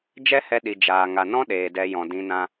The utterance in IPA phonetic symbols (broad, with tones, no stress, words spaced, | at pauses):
d͡ʒɛ˦hɛ˧ ɗi˨ d͡ʒaː˨ ŋa˨nɔ̃˦ ɗeː˨dɛ˧jɔ̃˨ dĩ˧nã˦